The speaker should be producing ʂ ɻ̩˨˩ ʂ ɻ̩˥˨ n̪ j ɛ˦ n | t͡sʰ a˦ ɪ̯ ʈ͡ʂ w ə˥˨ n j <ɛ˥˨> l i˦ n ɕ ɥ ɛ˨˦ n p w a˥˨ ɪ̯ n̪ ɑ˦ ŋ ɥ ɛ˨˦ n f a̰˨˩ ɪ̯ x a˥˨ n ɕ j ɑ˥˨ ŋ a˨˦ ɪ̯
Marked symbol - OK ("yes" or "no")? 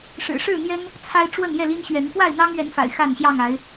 yes